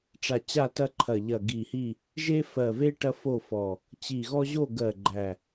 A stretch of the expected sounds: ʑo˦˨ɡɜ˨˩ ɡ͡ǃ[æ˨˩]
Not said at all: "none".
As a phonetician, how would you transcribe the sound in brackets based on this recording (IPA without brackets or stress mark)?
æ˨˩